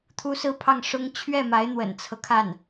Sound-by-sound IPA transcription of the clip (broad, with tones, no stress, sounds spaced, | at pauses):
t̪ʰ u˥ s ɹ̩˥˧ pʰ ɑ˥˩ ŋ ʂ ʊ˥ ŋ t͡ɕʰ ɥ ɛ˥˩ m a˧˥ ɪ̯ n̪ w ə̰˨˩ n t͡sʰ ɤ˦ kʰ a˥˩ n